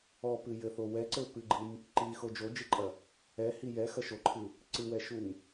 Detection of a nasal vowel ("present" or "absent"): absent